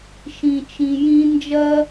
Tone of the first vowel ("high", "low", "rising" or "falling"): low